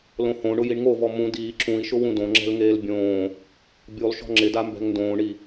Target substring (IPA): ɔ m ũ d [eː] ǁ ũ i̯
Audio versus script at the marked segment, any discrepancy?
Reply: yes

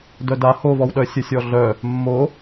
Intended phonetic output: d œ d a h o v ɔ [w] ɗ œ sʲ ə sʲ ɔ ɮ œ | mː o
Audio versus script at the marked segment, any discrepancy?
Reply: no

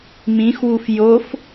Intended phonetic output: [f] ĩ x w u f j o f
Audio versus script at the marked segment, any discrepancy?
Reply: yes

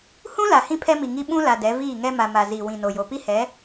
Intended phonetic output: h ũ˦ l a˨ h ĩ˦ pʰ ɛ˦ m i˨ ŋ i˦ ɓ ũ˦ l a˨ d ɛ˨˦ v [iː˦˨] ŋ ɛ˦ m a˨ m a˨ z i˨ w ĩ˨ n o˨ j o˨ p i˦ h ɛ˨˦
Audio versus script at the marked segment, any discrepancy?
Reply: no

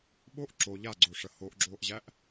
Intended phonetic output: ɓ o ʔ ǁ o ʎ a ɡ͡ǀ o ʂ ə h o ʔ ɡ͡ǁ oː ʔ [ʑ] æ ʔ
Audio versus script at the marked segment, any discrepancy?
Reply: no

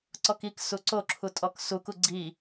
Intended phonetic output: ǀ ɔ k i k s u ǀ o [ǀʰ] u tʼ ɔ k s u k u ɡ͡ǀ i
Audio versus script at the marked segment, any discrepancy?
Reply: yes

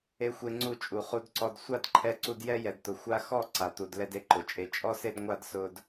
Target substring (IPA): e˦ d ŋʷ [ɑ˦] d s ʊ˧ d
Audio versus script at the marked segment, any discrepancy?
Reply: yes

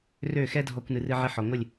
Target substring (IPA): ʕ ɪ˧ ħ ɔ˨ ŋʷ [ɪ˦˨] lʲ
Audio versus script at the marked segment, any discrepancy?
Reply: no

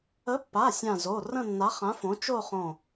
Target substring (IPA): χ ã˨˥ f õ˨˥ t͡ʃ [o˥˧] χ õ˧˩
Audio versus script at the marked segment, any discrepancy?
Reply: no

